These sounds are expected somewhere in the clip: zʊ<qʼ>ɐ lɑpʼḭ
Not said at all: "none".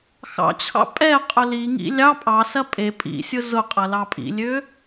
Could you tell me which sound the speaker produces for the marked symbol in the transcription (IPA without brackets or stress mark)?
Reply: qʼ